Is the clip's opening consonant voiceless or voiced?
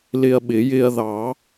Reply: voiced